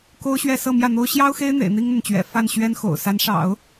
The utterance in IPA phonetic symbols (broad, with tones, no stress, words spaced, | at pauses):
ko˥ʊ̯ɕɥɛ˥˧ sɤ˥˧mjä˥˩n̪o˥ʊ̯ ɕjɑ˥ʊ̯xe˥ɪ̯n̪ḛ˨˩ɪ̯ n̪i˥ŋn̪ə˨nt͡ɕɥɛ̰˨˩ fa˥˩nɕɥɛ˥nxo̰˨˩ʊ̯ sa˧˥nʂɑ̰˨˩˦ʊ̯